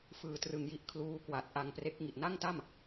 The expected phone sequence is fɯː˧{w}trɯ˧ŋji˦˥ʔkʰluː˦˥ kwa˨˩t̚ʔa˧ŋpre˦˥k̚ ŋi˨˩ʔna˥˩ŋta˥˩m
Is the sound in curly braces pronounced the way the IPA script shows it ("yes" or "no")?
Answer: no